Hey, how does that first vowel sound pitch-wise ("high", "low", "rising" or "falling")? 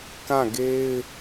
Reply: falling